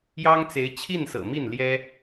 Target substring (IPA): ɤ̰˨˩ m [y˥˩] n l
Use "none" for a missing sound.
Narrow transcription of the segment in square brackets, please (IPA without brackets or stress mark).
i˥˩